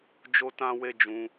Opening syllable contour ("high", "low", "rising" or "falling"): high